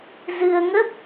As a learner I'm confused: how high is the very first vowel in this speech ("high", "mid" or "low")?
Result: high